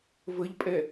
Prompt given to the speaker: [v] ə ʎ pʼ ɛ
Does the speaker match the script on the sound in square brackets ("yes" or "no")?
yes